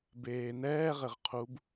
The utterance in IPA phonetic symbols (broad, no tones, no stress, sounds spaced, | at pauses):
b eː n ɛː ʁ ɘ ʁ qʰ u b